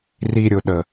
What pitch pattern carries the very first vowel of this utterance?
low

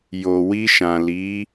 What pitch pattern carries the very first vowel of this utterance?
low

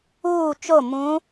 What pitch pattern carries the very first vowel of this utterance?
falling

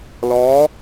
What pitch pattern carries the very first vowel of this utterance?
rising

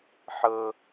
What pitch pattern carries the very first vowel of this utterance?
high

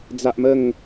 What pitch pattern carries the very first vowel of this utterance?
high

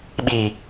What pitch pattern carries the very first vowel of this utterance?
low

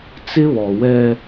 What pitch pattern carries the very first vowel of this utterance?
high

